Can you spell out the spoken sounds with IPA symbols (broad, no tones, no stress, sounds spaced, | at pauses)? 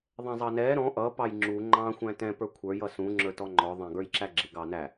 ðˤ ɛ̃ zˤ ɑ n ɛ ɾ ɔ̃ ʔ ʌ p ɑ j ŋ͡ǁ u ŋ͡ǃ ɑ̃ xʷ æ̃ t ɛ̃ p ə˞ kʷʰ ə˞ j ʌ s ũ ŋ͡ǁ ə˞ t ɔ ŋ͡ǃ ɔ ðˤ ɛ̃ ɡ ə˞ j ǁ æ ɡ͡ǁ ɪ ɡ ɑ n æ